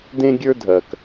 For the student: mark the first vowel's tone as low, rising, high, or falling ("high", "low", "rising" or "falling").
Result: high